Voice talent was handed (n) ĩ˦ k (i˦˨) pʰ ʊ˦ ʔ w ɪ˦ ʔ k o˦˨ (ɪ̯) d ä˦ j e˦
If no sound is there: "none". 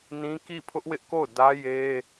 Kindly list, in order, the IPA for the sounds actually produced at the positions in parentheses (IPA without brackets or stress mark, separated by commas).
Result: n, i˦˨, ʊ̯